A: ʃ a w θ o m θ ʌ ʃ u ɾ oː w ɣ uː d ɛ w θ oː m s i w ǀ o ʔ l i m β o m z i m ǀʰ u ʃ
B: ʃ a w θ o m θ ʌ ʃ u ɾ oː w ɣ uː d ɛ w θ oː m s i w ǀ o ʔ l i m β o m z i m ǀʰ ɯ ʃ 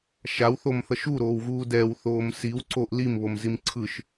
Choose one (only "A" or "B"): B